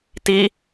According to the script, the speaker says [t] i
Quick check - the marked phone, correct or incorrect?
correct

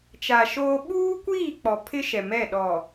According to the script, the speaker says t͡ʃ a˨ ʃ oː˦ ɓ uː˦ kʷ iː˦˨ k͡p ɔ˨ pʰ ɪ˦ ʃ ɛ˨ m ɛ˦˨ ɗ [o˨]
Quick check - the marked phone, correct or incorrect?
incorrect: ɔ˨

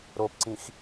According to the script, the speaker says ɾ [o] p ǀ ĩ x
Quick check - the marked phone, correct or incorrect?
correct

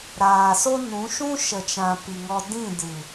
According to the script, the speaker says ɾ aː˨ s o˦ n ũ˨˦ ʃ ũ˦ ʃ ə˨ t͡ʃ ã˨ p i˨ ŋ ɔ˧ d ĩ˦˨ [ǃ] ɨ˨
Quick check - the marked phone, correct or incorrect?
incorrect: d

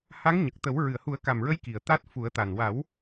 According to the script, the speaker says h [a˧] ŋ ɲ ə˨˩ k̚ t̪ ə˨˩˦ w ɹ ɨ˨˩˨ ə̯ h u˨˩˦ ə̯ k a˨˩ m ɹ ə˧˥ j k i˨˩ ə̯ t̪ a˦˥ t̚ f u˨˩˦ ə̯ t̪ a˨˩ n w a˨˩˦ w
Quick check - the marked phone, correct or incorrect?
incorrect: a˧˥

